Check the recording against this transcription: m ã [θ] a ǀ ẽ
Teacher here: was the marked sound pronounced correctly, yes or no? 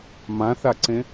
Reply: yes